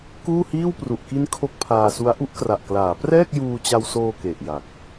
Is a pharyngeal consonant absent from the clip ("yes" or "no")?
yes